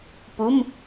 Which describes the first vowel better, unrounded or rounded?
rounded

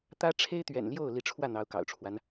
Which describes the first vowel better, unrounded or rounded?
unrounded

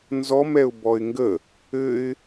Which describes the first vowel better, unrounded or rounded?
rounded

